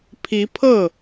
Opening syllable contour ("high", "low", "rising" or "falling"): rising